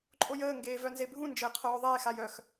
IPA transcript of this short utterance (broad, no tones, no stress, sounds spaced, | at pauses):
ǃʼ o j əː ŋ ɡ eː v œ n z e bʱ ũ n d͡ʒ əː qʰ oː ðˤ eː x a j œ x